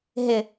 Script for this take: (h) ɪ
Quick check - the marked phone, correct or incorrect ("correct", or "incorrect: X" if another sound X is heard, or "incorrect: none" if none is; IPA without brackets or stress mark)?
incorrect: ɦ